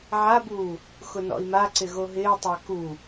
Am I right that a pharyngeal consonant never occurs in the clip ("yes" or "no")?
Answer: no